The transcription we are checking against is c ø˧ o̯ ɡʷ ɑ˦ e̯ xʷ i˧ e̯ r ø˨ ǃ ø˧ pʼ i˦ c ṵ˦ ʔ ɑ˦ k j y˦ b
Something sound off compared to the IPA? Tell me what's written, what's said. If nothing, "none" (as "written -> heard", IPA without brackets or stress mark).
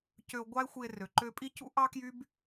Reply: none